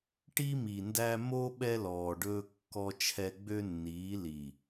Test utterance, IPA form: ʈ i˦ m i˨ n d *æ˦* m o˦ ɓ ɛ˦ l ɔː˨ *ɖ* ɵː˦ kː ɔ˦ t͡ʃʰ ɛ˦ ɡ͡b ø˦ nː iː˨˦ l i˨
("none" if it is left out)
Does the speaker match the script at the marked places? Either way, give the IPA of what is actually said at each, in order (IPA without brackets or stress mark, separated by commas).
æ˦, ɖ